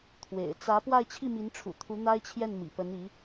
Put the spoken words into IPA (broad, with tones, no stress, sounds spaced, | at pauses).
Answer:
t̪ʰ w ḛ˨˩ ɪ̯ t͡s ä˧˥ p w a˥˧ ɪ̯ t͡ɕʰ i˥˩ m i˧˥ n ʈ͡ʂʰ ṵ˨˩ t̪ʰ u˧˥ n̪ a˥ ɪ̯ t͡ɕʰ j ɛ˥˩ n m ḭ˨˩ p ə˧˥ n i˧˥